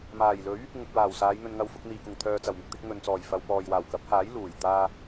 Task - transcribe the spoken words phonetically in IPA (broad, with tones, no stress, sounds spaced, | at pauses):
m aː˨˩ j l ɵ˨˥ ɥ | ŋ ʊ˨ k̚ w aː˨˩ w s aː˨˧ j n̪ ɵ˨ n ŋ ɐ˨˧ w f ʊ˨ k̚ n̪ iː˨˩ k ʊ˨˩ ŋ t̪ʰ œː˨ t͡s ɐ˨˩ w m ɪ˨ k̚ t̪ ɪ˧ k̚ ŋ ɵ˨ n t͡s ɔː˨˩ j f ɐ˨ w p ɔː˨ j w aː˨˩ w k ɐ˨˥ p̚ h aː˨˥ j l uː˨˩ j t̪ aː˧